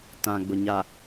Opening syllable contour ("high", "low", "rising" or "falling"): low